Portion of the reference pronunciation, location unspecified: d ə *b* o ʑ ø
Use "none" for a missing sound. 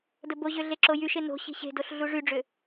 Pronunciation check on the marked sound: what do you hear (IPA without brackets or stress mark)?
b